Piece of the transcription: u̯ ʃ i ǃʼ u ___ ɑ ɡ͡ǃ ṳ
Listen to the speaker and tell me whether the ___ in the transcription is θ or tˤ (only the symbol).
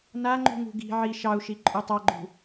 tˤ